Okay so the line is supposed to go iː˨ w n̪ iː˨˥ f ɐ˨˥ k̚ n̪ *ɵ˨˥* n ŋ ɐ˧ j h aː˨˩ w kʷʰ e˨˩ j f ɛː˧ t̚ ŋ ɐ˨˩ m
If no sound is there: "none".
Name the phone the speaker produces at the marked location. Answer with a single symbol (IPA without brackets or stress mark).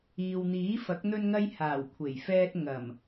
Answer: ɵ˧